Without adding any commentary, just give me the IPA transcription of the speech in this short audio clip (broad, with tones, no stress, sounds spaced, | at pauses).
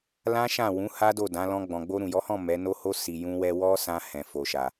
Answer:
l ã˦ ʃ ã˦˨ w ũ˨˦ h a˦ d o˦˨ d ã˨˦ l ɔ̃˧ ɡ͡b ɔ̃˨ ɡ͡b o˧ ɾ ũ˨ j ɔ˨˦ h ɔ̃˦˨ m ɛ˨˦ n o˧ h o˧ s i˨ j ũ˧ w ɛ˧ w ɔ˦ s ã˧ h ɛ̃˨ f o˨ ʃ a˨